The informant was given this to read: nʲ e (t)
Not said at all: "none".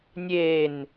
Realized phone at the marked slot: n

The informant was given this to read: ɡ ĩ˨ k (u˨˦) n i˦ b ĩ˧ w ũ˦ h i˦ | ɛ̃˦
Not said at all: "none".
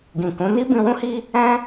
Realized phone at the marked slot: ũ˨˦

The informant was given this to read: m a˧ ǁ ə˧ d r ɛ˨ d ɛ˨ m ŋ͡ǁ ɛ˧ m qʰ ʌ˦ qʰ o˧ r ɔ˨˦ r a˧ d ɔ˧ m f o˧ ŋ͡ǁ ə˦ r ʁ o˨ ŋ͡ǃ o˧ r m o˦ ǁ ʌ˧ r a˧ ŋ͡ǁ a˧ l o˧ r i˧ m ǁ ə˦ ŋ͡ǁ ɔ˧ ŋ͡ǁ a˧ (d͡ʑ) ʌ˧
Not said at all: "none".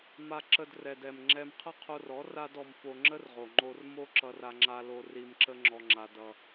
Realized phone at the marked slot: d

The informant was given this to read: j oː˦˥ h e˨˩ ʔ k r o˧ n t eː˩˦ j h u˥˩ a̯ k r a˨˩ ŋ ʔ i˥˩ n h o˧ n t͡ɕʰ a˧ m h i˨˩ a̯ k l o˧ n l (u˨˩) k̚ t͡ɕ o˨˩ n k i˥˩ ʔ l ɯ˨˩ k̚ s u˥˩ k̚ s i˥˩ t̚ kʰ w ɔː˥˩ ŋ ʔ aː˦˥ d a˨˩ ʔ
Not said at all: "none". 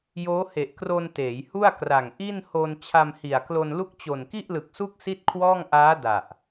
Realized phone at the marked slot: u˥˩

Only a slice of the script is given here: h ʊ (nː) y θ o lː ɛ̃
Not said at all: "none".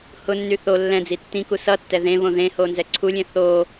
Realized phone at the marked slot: nː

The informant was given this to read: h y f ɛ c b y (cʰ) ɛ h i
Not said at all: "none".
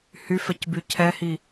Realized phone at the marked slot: cʰ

